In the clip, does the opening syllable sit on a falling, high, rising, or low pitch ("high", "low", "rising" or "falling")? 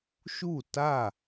falling